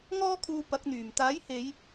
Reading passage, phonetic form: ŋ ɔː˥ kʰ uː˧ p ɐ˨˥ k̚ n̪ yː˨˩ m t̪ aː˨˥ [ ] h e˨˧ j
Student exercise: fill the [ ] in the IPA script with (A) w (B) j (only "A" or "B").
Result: B